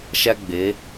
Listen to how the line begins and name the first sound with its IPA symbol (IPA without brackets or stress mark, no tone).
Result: ʃ